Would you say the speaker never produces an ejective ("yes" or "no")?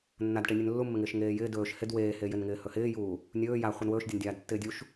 yes